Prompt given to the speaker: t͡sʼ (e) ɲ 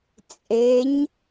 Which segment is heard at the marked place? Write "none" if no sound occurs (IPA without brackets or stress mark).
e